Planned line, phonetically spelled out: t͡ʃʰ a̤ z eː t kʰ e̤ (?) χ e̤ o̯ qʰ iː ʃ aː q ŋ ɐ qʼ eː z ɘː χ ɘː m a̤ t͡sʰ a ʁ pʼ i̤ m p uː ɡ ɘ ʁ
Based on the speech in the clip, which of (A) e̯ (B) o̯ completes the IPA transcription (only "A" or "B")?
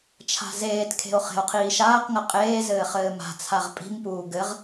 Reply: B